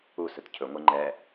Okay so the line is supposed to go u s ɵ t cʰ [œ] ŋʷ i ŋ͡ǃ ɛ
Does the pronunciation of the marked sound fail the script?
yes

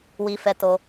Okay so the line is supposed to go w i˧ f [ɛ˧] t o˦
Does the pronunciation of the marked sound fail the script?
no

